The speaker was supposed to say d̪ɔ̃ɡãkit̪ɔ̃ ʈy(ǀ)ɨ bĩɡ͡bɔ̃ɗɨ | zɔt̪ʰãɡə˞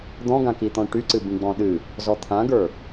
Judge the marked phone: correct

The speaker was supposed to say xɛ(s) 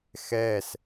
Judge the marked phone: correct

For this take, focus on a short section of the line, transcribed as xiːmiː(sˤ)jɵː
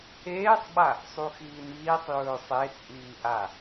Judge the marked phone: correct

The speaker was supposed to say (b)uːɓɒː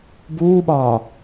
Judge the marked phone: correct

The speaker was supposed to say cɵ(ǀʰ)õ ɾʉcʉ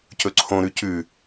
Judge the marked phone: correct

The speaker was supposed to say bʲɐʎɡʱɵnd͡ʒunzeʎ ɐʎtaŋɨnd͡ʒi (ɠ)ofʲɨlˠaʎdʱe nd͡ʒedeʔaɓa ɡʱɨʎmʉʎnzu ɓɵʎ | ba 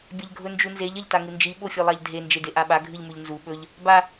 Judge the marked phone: incorrect: ɓ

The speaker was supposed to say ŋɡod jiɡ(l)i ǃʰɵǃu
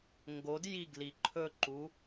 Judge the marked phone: correct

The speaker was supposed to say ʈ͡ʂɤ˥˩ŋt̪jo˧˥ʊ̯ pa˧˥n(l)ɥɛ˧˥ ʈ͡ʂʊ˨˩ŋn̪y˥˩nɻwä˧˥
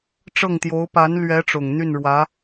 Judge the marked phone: correct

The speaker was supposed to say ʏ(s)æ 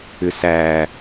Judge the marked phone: correct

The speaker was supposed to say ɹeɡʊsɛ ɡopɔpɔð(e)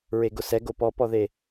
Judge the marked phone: correct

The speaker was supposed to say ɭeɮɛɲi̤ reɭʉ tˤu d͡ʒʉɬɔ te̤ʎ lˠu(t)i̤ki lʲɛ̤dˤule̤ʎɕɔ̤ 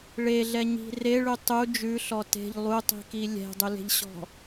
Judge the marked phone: incorrect: tˤ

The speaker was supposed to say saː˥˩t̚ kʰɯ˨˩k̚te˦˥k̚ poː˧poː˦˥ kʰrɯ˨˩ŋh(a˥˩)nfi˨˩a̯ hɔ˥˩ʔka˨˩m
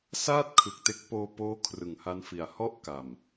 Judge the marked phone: incorrect: a˦˥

